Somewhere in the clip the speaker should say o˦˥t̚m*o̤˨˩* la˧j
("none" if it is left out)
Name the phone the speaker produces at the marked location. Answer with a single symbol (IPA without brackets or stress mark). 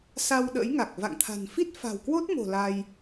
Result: o̤˨˩